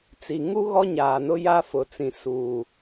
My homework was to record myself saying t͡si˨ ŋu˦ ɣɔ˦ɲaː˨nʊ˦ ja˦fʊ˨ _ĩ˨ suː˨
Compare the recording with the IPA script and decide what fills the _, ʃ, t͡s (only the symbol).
t͡s